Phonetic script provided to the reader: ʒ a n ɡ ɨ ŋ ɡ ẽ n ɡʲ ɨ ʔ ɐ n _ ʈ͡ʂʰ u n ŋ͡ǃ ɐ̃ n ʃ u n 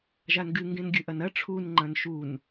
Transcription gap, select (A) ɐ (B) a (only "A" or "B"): A